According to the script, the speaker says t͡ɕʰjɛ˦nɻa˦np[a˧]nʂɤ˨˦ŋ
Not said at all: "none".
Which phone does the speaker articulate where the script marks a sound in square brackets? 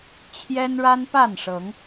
a˥˨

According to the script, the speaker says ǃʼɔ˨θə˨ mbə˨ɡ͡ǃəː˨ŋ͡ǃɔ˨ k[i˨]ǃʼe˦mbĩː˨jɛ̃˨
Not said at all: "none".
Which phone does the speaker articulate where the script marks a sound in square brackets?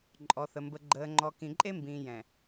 ĩ˨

